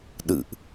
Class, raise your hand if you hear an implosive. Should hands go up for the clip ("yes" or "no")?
yes